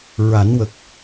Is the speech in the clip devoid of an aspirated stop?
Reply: yes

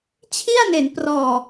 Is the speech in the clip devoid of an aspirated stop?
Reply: no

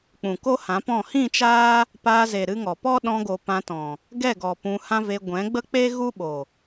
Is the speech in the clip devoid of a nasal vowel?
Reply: no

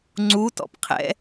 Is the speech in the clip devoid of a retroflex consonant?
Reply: yes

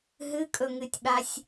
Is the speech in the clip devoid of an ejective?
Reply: no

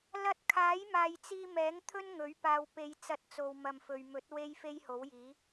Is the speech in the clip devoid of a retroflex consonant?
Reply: yes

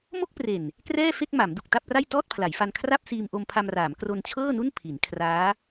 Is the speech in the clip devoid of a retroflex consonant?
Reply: yes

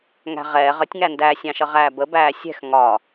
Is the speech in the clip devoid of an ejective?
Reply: yes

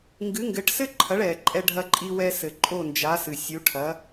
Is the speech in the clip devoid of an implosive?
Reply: yes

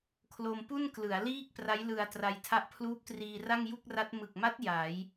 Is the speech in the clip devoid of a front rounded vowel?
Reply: yes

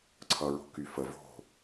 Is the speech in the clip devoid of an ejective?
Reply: yes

